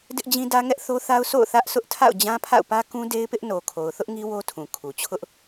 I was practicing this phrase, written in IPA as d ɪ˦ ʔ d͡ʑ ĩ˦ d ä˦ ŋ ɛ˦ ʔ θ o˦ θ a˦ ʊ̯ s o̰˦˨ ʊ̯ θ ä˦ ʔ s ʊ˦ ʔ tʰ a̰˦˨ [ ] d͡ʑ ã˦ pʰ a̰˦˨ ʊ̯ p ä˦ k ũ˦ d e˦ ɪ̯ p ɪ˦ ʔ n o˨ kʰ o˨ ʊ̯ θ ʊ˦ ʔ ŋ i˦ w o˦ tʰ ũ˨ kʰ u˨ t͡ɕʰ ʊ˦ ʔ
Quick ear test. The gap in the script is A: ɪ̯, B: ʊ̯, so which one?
B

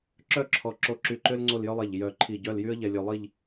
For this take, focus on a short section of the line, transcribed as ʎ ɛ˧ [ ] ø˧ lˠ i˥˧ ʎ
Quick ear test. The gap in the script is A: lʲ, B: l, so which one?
A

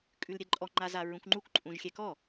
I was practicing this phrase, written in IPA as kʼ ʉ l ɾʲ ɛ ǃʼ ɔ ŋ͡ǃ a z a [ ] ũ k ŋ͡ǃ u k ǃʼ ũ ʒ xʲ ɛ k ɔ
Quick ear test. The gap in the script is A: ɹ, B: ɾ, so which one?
A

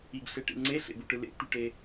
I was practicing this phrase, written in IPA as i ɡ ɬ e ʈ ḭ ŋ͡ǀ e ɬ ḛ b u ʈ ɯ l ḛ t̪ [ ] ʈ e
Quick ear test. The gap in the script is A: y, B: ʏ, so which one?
A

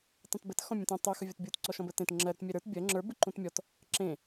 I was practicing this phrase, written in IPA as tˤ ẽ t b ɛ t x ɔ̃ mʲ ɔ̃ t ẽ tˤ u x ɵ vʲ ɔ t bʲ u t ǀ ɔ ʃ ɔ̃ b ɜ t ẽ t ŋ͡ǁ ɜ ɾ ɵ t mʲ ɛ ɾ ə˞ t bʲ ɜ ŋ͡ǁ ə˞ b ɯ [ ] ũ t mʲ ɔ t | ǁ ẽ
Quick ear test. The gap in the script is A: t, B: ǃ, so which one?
B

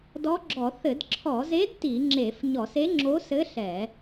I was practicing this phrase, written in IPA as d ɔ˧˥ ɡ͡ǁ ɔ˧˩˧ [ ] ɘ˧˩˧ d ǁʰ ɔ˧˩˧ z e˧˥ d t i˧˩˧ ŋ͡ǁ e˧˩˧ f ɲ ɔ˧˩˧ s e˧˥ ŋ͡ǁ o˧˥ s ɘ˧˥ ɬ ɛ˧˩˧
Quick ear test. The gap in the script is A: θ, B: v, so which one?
A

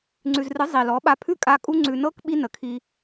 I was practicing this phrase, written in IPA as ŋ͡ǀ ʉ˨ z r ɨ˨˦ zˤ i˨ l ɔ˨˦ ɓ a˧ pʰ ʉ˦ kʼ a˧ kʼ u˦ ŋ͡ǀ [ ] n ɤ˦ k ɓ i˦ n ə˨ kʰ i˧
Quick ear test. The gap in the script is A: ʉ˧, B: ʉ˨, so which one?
B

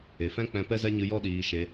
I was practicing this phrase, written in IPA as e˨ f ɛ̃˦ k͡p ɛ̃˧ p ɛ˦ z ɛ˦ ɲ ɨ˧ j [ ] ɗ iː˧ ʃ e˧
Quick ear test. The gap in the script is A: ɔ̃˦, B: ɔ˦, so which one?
B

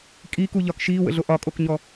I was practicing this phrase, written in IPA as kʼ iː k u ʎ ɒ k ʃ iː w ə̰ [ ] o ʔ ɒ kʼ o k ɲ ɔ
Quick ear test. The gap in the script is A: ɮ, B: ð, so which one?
A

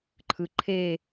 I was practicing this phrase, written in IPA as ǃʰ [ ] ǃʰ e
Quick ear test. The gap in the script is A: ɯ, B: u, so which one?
A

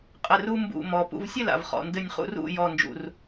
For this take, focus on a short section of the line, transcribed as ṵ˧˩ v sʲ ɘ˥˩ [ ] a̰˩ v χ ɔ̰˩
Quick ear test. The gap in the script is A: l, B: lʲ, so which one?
A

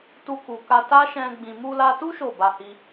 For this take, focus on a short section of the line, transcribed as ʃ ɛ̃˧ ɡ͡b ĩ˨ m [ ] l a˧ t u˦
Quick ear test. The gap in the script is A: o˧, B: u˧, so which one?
B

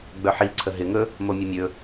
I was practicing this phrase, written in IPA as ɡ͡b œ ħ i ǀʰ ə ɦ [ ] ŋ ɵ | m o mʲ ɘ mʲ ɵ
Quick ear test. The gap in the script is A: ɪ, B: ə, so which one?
A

